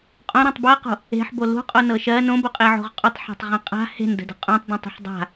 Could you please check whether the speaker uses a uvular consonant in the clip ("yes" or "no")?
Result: yes